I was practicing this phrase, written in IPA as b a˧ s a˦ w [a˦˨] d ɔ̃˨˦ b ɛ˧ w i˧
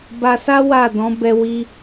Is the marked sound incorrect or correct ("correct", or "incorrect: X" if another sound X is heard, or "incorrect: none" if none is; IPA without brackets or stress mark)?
correct